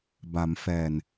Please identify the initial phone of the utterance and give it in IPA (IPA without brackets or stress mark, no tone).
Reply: b